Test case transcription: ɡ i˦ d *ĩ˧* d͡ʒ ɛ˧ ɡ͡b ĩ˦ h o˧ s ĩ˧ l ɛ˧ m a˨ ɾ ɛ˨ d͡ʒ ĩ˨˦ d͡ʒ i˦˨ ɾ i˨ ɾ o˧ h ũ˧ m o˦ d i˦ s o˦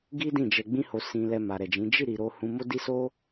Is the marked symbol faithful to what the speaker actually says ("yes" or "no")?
no